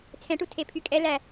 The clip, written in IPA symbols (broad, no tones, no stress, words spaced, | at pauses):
t͡sʰɛ̃ʈu tʰepʰykʼɛ læ